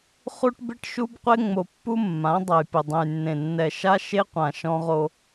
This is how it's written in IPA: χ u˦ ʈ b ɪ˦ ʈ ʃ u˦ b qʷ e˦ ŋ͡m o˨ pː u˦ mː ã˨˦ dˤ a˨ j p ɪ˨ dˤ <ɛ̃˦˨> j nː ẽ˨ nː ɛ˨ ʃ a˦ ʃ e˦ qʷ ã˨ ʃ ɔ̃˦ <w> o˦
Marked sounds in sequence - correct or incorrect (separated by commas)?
incorrect, incorrect